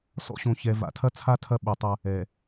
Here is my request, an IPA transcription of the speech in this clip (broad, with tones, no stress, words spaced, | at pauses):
sɔ̰˦ɕõ˨çɛ˨ va̰˨tʰɐ˦t͡sʰa˦ tʰɐ˦ ɓɨ˨tˤɐ˦ | ɛ˨